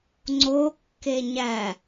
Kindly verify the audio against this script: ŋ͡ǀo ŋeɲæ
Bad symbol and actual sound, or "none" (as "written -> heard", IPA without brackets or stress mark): ŋ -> kː